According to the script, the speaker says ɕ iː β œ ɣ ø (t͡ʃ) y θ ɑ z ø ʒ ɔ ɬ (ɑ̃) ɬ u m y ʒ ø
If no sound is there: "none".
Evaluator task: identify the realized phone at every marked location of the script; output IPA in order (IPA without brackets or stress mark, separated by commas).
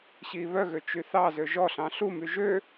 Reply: t͡ʃ, ɑ̃